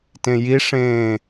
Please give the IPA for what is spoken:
t ẽ j i ʂ ẽː

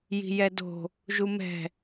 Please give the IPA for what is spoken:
j i̤ j ɛ d o̤ | ʒ u m ɛ̤

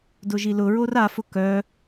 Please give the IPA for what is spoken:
d ʊ ʒ i l ʊ ɹ o r a f ʊ k œ

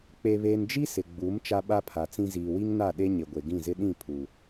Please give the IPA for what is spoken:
k͡p e˨ β eː˨ n d͡ʒ i˦ s ɪ˨ ɡ͡b u˨˦ m t͡ʃ a˦ ɓ a˦ pʰ a˨ t͡s ĩ˦ z iː˨ w i˦ ŋ n a˦˨ ɗ e˦ ɲ ɪ˨ ɡʷ e˨ ɡ ĩ˦˨ z ɪ˦ ɗ ĩ˦˨ pʰ u˦

